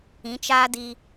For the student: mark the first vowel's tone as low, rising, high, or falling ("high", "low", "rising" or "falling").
rising